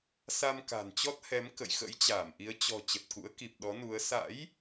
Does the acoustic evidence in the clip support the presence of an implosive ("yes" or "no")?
yes